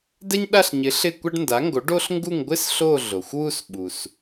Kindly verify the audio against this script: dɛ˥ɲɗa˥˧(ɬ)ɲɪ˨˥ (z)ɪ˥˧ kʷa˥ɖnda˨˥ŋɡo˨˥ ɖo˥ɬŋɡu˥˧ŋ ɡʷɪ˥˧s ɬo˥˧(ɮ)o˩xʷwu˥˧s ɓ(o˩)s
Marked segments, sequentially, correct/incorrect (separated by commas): correct, incorrect, correct, incorrect